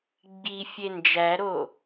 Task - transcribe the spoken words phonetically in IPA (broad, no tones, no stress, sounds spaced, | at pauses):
ɡ͡b i fʲ e n d͡ʒ æ ɾ o